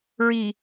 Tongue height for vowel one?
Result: high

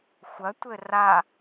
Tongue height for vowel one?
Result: low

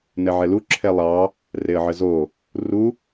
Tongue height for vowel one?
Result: mid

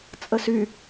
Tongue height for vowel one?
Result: mid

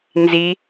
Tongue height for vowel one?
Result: high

